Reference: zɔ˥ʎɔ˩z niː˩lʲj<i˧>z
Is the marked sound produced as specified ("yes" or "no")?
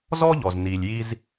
yes